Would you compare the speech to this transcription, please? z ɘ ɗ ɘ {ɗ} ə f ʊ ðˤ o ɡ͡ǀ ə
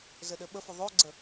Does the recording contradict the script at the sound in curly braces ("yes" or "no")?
yes